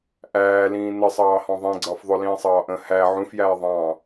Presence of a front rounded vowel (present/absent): absent